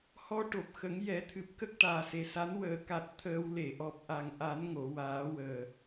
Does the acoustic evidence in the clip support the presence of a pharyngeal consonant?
no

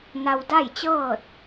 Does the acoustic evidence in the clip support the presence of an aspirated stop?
no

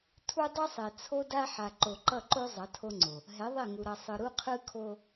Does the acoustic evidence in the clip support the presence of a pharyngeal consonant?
yes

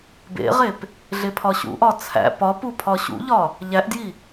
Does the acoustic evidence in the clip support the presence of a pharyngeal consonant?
no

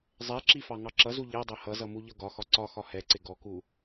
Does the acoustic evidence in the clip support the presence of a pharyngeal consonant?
no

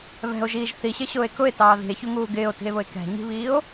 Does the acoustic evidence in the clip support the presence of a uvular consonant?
no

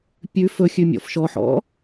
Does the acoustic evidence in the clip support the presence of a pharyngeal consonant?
yes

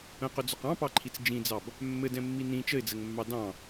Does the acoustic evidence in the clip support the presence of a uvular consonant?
yes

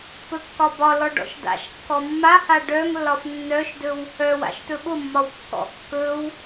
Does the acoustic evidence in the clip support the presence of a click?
no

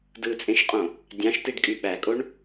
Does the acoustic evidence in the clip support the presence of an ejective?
yes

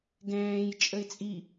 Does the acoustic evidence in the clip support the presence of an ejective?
yes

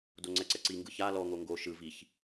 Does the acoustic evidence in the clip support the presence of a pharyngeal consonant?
no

